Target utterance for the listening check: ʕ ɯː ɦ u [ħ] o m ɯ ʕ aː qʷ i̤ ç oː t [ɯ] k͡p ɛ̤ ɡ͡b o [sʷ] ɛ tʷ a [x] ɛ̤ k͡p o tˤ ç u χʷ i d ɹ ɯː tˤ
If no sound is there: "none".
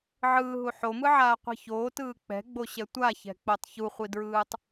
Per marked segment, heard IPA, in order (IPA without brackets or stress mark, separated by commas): ħ, ɯː, ɕ, ç